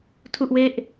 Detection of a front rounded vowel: absent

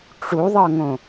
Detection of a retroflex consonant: present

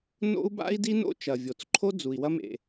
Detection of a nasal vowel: absent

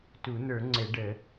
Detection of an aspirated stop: absent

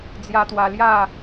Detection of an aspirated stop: absent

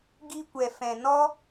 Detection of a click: absent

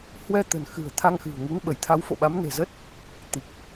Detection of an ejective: absent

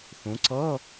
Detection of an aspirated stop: absent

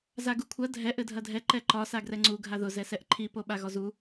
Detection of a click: present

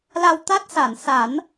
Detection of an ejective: absent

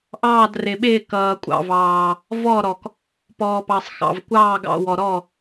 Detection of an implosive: present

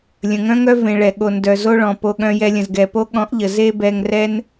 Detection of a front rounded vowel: present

